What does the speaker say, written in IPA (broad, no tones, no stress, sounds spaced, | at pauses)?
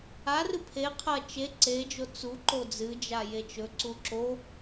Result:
a r ɨ pʰ e qʰ ɐ t͡ʃ e ǀ e d͡ʒ o t͡s u ǃ o d͡z ɨ d͡ʒ a j e t͡ʃ ɵ ǀ u ǁ o